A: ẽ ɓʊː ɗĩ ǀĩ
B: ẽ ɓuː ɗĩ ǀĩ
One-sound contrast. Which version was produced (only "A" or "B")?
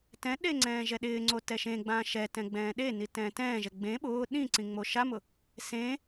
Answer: A